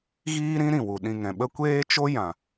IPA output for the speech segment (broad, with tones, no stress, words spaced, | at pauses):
ɣiː˦ ɾĩ˦ ɾĩ˨wu˨ɗĩ˦˨ ŋɛ̃˨ɓə˦ kʷeː˦t͡ʃo˦ jã˨